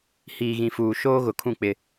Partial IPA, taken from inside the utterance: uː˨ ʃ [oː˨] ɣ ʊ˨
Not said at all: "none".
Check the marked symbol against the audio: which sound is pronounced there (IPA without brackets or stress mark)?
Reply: oː˦